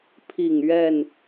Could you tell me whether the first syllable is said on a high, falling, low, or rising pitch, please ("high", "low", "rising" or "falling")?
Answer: falling